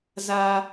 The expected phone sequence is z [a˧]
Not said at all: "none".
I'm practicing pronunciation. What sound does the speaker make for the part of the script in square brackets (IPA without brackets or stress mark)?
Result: a˧